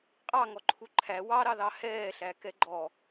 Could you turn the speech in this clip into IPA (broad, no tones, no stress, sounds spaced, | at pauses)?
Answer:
qʼ ɑ ŋ ɔ ǃʰ u ǃʰ æ w ɑ ɾ ɑ ð ɑ h ɛː ɬ æ k ɛ ɡ͡ǃ ɔ